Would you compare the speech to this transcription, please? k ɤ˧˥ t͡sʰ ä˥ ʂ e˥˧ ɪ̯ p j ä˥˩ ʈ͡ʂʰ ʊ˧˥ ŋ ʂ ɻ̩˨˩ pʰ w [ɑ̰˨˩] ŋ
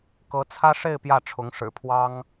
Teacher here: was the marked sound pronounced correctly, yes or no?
no